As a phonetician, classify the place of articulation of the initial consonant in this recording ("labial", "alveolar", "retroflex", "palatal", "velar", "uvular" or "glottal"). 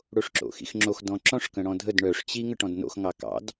retroflex